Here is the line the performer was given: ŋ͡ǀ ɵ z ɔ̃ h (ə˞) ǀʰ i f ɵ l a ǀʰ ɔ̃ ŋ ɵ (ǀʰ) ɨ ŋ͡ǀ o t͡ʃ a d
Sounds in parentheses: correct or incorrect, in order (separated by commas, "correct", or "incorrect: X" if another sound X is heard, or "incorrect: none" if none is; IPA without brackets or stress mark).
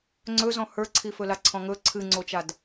correct, correct